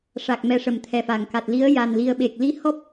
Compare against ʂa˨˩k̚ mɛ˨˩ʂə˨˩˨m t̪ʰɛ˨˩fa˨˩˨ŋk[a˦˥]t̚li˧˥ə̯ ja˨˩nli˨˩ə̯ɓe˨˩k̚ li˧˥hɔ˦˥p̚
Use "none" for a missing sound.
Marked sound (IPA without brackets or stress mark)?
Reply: a˨˩